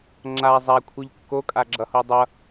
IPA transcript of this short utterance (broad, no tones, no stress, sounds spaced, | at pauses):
ŋ͡ǁ a zˤ a kʷʰ ɯ ʎ kː o kʼ a ɡ͡ǁ ʌ h o dˤ ʌ